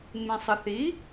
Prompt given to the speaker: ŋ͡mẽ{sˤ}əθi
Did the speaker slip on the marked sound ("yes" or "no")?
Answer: no